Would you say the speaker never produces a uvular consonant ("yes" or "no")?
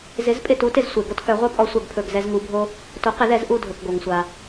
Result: no